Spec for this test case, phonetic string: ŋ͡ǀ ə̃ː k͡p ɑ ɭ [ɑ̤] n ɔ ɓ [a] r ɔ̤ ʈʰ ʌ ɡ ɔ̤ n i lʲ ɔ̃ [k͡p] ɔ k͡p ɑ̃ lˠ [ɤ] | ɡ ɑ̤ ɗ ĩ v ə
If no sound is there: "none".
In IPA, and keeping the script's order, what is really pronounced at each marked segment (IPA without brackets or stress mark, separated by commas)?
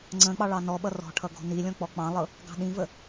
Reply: ɑ, ʌ, k͡p, ɤ